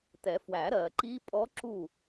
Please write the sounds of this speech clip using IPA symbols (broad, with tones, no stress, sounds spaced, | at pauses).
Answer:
t ɛ˨˩˦ f w æ˨˩˦ ɾ ɜ˨ ǃ i˦˥ pʼ ɔ˦˥ ǁ u˦˨